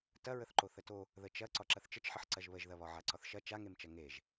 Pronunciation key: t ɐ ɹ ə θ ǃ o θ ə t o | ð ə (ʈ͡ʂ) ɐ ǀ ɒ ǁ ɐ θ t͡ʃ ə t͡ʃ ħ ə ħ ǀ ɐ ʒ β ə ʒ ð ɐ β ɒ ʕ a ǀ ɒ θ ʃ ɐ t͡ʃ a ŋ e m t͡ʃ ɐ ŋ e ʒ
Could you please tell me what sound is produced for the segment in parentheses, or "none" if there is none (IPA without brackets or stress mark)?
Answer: t͡ʃ